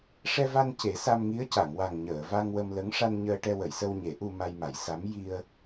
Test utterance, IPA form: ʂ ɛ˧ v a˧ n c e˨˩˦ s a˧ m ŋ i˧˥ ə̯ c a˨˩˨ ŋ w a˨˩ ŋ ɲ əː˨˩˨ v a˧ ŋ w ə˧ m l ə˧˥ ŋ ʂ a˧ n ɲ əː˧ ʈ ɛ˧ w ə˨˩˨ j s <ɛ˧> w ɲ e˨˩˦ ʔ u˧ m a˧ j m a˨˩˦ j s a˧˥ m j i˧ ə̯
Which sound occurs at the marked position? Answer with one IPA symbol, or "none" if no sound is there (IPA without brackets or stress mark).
ə˧